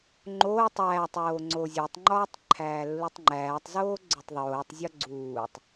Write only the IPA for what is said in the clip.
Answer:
ŋ͡ǃ oː tˤ æː tˤ oː ŋ͡ǀ o zʲ o tˤ ŋ͡ǃ ɒː tˤ ǃʰ æː lː u tˤ ŋ͡ǃ æː tˤ z oː ɡ͡ǀ o tˤ ðˤ oː tˤ zʲ ɒ ɡ͡ǀ uː tˤ

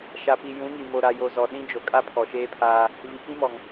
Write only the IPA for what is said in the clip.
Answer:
ʃ a˨ p i˨ j ũ˨˦ ŋ i˨ m o˨ ɾ a˨ j o˨ z ɔ˨ ɗ ĩ˦ d͡ʒ o˨ kʼ a˦ pʰ ɔ˨ ʃ eː˦ pʰ aː˦ | v i˨ k ĩ˦ m ɔ˨ ŋ

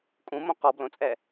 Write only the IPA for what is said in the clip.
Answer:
kʼ ũ m õ q ɔ b l õ t͡sʼ ɛ

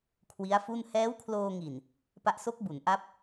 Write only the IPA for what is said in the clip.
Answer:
kʰ w i˦˥ a̯ f u˥˩ n h ɛː˦˥ w kʰ l oː˧ ŋ i˨˩ n | p a˦˥ ʔ s o˦˥ k̚ b u˩˦ n ʔ a˦˥ p̚

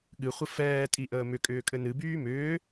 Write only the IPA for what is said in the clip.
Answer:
ɠ ɨ χʷ ə f ɛː tʼ i ʔ əː m ʏ kʼ ʏː kʼ ɘ n ɨ b yː m ʏː

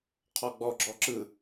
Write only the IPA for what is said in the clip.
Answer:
qʰ ɔ ɡ͡b ɔ ɡ͡ǁ ɔ ǁ ɯ

